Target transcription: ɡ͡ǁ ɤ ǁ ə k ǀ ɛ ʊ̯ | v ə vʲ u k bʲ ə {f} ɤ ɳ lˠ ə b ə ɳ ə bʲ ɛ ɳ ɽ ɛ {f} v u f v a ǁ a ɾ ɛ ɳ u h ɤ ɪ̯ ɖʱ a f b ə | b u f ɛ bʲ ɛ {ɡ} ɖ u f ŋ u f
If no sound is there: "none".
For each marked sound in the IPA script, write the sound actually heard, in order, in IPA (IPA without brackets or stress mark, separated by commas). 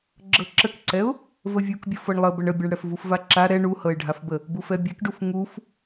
f, f, k